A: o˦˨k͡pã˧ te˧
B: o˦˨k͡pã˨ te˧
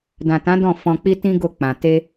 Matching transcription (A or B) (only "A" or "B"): B